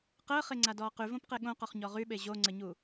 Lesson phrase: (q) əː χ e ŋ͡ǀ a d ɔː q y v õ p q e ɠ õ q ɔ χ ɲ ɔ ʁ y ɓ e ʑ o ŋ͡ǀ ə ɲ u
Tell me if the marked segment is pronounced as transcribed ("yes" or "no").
yes